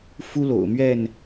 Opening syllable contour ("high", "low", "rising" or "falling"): high